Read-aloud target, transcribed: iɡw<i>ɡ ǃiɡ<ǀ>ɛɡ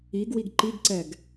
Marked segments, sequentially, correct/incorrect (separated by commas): correct, correct